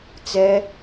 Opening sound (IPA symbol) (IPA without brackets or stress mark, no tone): t͡s